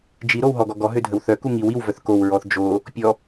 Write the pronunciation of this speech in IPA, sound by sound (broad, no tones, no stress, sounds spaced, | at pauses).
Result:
d͡ʒ i ɾ o w ɦ ɔ ɡ ɔ ɡ ɔ ɦ ø dʱ ə w θ œ k u ŋ i w i w v œ θ k o w ɹ ɔ θ d͡ʒ o | pʲ ɔ